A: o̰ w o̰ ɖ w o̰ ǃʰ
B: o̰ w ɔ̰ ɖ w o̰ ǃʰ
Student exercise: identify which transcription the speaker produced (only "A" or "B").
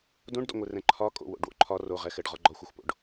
A